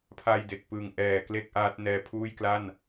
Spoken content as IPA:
pʰ a˧ j d e˨˩ k̚ p ɯ˨˩ ŋ ʔ ɛː˨˩ k l e˥˩ k̚ ʔ aː˦˥ t̚ n ɛː˧ pʰ uː˥˩ j k l a˥˩ n

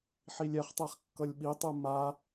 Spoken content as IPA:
ħ i lʲ ɛ χ tˤ ɛ χ kː ʌ lʲ ɓ i tˤ ɯ m a

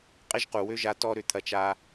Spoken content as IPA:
qʼ ɪ˦ ʒ q u˨ w ø˦ ʒ a˧ t ɔ˦ ɾ ʏ˧ t̪ʰ ɐ˧ t͡ʃ a˧

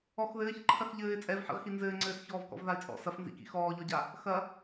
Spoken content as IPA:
ɔ x ð ɘː ç ǃʰ ɐ x ʎ ɘː ɪ̯ t͡sʼ ɛ v ħ ḭ ʁ x i n z ɘː ŋ͡ǀ ɘː s ç ɔː v k ɔ̰ v ð a ɪ̯ t͡sʼ ɔ̰ s ɐ f n z ḭ k ḭ x ɔː ʎ ɔ ɟ a | x ɐ

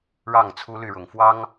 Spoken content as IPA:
ɻ ɑ˥˩ ŋ t͡sʰ u˥ l y˥˩ ɻ ʊ˨˩ ŋ f w ɑ˥ ŋ

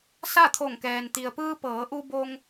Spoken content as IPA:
s a˥˨ t̪ʰ o˧˩ ŋ k ɛː˩ n t̪ i˩ ə̯ p ɯː˧ p ɤː˩˧ ʔ u˧ b o˧ ŋ

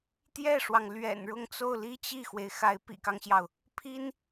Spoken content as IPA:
t̪ j ɛ˥˩ ʂ w ɑ˩ ŋ l ɥ ɛ̰˨˩ n ɻ ʊ˥˧ ŋ t͡s o˥˧ ʊ̯ l i˥˧ t͡ɕ i˥˩ x w e˩ ɪ̯ x a˧˥ ɪ̯ p ḭ˨˩ k ɑ˦ ŋ ɕ j ɑ˩ ʊ̯ | pʰ i˥ n

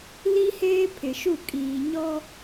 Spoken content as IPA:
l i˦ h eː˦ pʰ ɪ˨ ʃ u˦˨ kʼ iː˨ ɲ ɔ˦

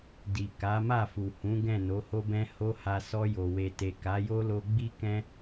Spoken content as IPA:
d i˨ k a˨˦ m a˦˨ f u˨ h ũ˨˦ ɡ ɛ̃˦˨ n o˨˦ h o˦ b ɛ̃˦ h o˦ h a˧ s ɔ˧ j o˨ w e˨ t e˨ k a˨˦ j o˦ l o˧ ɡ͡b i˦ k ɛ̃˦

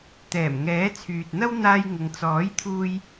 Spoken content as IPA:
t̪ ɛː˨˩ m ŋ ɛː˨˥ t͡sʰ yː˨ t̚ n̪ ɐ˥ w n̪ aː˥ j ŋ ʊ˧ ŋ t͡s ɔː˨˥ j t̪ʰ uː˧ j

